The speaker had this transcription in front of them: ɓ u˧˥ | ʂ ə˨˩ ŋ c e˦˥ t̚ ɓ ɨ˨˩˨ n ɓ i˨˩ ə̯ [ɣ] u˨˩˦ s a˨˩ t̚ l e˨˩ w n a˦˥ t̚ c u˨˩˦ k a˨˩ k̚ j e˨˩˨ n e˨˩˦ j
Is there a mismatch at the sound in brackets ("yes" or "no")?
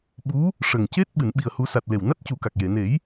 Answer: yes